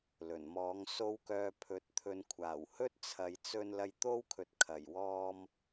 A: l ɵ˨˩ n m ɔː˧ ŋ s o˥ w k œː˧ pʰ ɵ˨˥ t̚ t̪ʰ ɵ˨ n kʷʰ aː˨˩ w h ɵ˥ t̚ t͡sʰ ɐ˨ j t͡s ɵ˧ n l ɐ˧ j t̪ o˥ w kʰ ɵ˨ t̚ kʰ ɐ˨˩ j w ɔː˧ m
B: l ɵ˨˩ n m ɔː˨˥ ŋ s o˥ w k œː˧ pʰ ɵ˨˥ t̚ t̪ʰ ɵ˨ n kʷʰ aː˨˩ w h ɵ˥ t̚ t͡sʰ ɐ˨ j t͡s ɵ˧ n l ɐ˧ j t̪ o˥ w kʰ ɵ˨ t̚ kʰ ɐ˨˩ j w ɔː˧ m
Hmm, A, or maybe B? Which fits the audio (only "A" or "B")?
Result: B